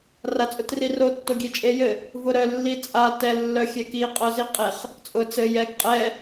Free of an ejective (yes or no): no